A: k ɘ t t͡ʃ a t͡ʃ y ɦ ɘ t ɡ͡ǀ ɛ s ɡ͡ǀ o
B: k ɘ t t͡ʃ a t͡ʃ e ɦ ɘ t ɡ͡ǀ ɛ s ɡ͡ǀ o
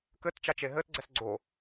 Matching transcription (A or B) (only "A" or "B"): B